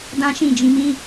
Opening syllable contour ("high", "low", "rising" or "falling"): high